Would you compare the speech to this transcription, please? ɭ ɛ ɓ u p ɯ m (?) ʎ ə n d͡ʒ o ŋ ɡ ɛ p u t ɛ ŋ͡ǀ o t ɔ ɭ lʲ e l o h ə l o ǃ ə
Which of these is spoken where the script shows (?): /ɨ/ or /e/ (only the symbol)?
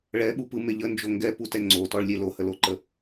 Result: e